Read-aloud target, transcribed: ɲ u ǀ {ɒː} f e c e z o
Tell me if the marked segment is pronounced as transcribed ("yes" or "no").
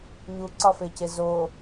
no